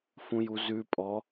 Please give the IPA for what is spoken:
f ũ j u z ʉ pʼ ɔ

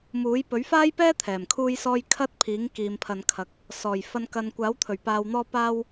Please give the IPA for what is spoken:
m uː˨˥ j p ɵ˨˥ ɥ f aː˥ j p ɛː˥ t̪ʰ ɛː˨˩ m kʰ uː˥ j s ɔː˥ j kʰ ɐ˧ t̚ pʰ iː˨˥ ŋ k iː˨ m pʰ ɐ˨ n kʰ ɐ˨˥ k̚ | s ɔː˨˩ j f ɐ˨ n k ɐ˨ n kʷ aː˨˥ w t̪ʰ ɵ˨˩ ɥ p aː˨ w n̪ ɔː˧ p aː˧ w

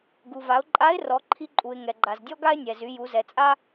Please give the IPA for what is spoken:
ɡ u˩ v a˩˧ ʊ̯ ǃʼ a˧˥ ɪ̯ r ɔ˩˧ ǃʰ i˧ ǃʼ u˩ ɪ̯ ŋ ɛ˩ ɡ͡ǃ a˩ z dʲ ɔ˥ ɡ a˥ ɪ̯ nʲ ɛ˩ z y˩˧ j u˩˧ z ɛ˩ t͡sʼ a˥

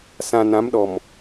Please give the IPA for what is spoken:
s ã˨ n ã˨˦ m ɗ ɔ˨ m

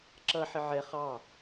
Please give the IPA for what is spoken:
ǁ ʌ ħ ɪ ʕ ɛ χ ɑ

